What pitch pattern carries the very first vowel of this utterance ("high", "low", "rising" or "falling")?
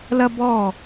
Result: high